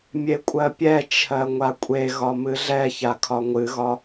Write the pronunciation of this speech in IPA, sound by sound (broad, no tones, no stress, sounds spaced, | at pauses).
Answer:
mʲ e kʷʼ ɜ pʲ ɛ t͡ʃʰ ɜ ŋʷ a kʷʼ e ɣ ɒ m ɨ ɮ ɛ ç a kʰ ɒ ŋʷ ɨ ɣ ɒ